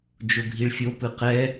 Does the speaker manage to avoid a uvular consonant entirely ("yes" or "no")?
no